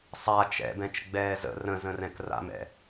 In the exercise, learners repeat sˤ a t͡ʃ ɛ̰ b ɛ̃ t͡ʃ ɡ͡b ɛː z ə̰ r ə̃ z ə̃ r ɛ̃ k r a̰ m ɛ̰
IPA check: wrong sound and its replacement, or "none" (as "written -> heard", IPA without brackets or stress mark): none